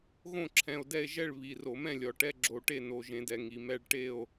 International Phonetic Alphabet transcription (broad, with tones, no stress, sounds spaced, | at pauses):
ɣ õ˥˨ ǁʰ ɛ̃˨˩ o̯ d ɛ˥˨ e̯ ʒ ɛ˥˨ ɭ β i˨˩ r o˧˩˧ m ɛ̃˥˨ lʲ ɔ˨˩ ʈ ɛ˥˨ ɡ͡ǁ o˧˩˧ ʈ e˥˨ n o˨˩ ʒ ẽ˧˩˧ d ɛ˨˩ ŋ i˨˩ m ɛ˥˨ ɭ ʈ e˥˨ o̯